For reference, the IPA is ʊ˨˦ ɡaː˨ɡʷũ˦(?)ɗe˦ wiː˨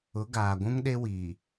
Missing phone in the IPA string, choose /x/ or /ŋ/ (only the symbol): ŋ